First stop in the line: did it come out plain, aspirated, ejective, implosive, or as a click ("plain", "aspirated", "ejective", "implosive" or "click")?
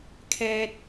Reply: aspirated